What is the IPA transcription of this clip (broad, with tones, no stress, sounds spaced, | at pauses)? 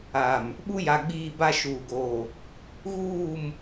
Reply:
aː˨ m | ɓ u˦ j a˨ ɡ͡b iː˦˨ b a˦ ʃ uː˨ ɡ oː˨ | ɣ uː˦˨ m